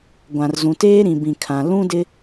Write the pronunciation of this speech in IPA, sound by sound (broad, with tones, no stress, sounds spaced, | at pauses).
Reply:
ɡʷ ã˨ r z ũ˨ t eː˦ ɾ ĩ˨ b ĩ˨ kʰ ã˨ l ũ˦ d ɪ˦